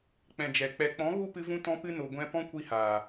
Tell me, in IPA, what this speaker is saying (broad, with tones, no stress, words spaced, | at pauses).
k͡pɛ̃˨d͡ʒɛ˨ k͡pɛ˨k͡pɔ̃˨˦ ɣu˦˨pɨ˧vũ˧ tɔ̃˧pɨ˧no˨ ɡʷɛ̃˧ pɔ̃˦kʷi˧haː˨